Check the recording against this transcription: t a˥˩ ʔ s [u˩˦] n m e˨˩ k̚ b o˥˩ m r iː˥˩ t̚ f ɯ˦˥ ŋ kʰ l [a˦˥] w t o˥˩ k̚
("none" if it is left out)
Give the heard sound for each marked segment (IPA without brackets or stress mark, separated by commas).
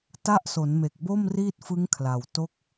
o˩˦, a˨˩